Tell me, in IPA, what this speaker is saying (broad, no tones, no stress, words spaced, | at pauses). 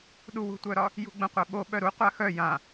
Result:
ɗuwṳtʷœɾɒ | jṳɡ͡bə̃qʷɛɓo ɓœɾu qʷaxœ jã